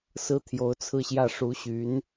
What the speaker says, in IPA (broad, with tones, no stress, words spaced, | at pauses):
sɹ̩˥t̪ʰjo˧˥ʊ̯t͡sʰɹ̩˥˧ɕjä˥˩ ʂu˧˥ɕy˧˥n